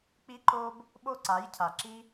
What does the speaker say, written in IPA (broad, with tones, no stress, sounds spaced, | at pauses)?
k͡p i˦ ǃ o˦ b | ɓ o˦ ǀ a˨˦ j cʰ a˨ ǁ i˦